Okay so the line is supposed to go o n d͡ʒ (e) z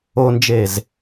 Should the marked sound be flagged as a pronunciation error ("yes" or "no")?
no